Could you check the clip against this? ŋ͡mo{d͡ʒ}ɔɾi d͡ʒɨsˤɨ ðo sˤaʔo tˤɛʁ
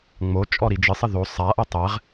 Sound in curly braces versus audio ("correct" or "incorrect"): incorrect